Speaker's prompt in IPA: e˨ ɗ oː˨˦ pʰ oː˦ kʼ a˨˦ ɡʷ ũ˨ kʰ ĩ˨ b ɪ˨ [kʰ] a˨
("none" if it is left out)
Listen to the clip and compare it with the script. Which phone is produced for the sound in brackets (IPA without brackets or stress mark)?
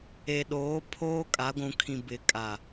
kʼ